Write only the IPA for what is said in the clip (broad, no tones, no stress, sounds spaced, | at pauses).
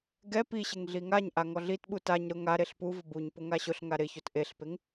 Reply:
ɡ ɛ p i ɕ ɪ ŋ ɮ i ŋ a ɲ ʔ a ŋ ɔ ɮ i t ɓ u t a ɲ ɾ ʊ ŋ a ɾ e ɬ p u v ʊ b u ɲ p ʊ ŋ a ɕ ʊ ɬ ŋ a ɾ ɪ ç o t ʔ e ɬ p e ŋ